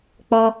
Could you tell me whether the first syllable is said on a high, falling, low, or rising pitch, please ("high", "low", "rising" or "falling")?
high